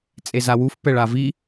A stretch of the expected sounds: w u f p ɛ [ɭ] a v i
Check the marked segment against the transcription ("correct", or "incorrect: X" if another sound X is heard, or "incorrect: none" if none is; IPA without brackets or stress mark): correct